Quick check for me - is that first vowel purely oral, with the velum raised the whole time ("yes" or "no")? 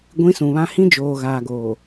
no